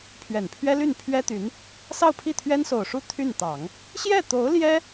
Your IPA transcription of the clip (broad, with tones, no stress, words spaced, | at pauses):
pʰɥɛ˨˩npʰɥɛ˥ly˥˩n pʰɥɛ˥t̪y˧˥n | sɑ˥˧ʊ̯pʰi˥˩ t̪ʰɥɛ˥nso˨˩ʊ̯ʂu˥˧ t̪ʰy˥˩nt̪ɑ˨˩˦ŋ | ɕjɛ˥˩t̪o˧˥ʊ̯ ljɛ˥